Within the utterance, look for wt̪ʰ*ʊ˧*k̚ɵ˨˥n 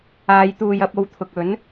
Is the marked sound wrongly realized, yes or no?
yes